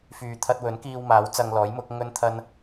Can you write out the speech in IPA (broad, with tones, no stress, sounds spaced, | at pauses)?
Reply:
f yː˨ t̪ʰ ɐ˧ t̚ w ɵ˨˥ n k iː˧ w m aː˨˥ w t͡s ɐ˧ ŋ l ɔː˨˥ j m ʊ˨˥ k̚ ŋ ɵ˥ n t̪ʰ ɐ˥ n